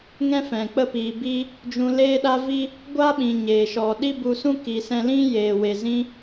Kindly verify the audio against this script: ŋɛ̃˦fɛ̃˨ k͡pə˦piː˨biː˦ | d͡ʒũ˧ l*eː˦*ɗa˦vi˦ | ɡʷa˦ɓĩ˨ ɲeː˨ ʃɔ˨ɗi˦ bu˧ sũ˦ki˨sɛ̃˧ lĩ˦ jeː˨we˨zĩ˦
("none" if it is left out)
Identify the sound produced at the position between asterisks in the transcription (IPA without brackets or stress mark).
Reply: eː˦